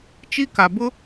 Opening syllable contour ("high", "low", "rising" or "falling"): high